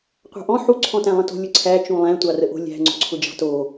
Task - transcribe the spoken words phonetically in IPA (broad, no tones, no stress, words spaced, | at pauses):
qʷɑ̤ʔɔ̃ ħu ǀʰɔ̃tæ̃lˠə̃to̤ lʲʊǀʰæ t͡ʃũlˠæ̃ tʷɑrəʔo̤ lʲæ̤ ŋ͡ǀo̤ǀʰʊd͡ʒɑ̤to